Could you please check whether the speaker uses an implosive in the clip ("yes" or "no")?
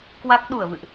yes